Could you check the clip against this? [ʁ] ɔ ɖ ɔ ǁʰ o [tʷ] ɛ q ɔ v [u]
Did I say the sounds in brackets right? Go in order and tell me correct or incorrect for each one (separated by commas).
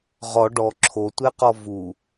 correct, correct, correct